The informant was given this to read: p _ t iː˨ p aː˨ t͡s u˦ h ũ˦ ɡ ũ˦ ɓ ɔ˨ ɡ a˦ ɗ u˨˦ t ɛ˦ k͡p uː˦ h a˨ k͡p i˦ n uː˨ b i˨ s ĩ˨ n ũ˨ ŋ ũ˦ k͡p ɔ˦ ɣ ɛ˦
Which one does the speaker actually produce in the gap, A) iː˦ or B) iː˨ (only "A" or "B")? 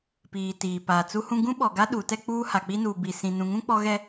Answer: B